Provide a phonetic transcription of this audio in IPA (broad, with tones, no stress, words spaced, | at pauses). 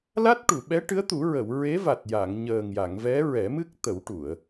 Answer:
la˦˥t̚ʈu˨˩˨ ɓɛ˧˥ʈɨ˧˥ə̯t̪u˨˩˦ ɹə˨˩˨wɹe˧˥va˨˩t̚ ja˨˩˨ŋ ɲəː˨˩ŋja˨˩˨ŋvɛ˧˥ ɹɛ˨˩˦mɨ˦˥k̚ t̪ə˨˩˦wʈu˨˩˨ə̯